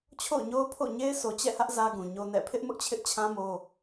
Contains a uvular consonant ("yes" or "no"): no